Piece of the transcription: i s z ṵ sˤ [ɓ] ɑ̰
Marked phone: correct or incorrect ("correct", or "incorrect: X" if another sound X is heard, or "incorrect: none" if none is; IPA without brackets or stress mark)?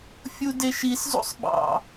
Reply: correct